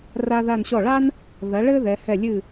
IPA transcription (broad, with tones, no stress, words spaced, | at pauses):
ra˥ða˥˧nɕɔ˥˩ ɭa˥n | ðɐ˨˦ɭɘ˥ ðɛ˨˦hɛ˥˩ lʲɨ˥˩